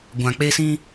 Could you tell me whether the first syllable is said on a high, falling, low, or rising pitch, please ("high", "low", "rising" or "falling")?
low